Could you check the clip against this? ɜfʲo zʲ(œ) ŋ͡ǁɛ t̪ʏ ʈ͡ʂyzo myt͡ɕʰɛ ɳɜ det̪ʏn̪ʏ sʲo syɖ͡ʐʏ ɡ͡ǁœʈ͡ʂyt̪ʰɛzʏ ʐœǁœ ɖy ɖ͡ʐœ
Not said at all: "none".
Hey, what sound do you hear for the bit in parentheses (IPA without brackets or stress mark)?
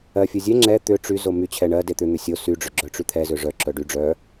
ɛ